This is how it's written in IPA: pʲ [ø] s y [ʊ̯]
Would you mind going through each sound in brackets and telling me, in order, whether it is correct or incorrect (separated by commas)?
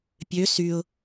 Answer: correct, correct